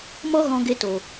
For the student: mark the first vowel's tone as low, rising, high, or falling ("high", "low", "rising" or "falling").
high